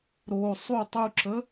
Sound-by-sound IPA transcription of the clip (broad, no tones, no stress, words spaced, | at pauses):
ɾo sˤu tˤuǁə